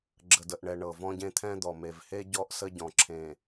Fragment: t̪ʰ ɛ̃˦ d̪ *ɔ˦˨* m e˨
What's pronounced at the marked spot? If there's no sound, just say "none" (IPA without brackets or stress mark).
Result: ɔ˨